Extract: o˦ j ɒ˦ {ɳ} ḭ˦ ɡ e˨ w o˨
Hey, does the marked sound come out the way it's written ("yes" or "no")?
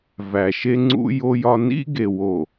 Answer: no